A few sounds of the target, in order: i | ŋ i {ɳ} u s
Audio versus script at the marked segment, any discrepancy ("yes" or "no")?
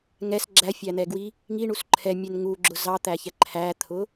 no